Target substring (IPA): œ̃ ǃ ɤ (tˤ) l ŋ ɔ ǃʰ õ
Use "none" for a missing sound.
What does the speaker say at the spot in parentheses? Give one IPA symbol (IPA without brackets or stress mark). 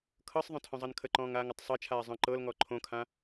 none